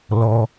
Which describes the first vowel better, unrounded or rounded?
rounded